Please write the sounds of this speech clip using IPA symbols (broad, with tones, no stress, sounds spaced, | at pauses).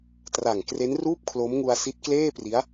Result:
t r a˨˩ ŋ k r e˦˥ n r uː˥˩ p̚ kʰ l o˦˥ m ŋ u˧ a̯ s i˦˥ t̚ k l eː˥˩ p r i˦˥ a̯